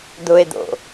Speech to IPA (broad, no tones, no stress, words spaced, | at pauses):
d̪ʊe̯d̪o̰